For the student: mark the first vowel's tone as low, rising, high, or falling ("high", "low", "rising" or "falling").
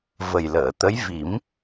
low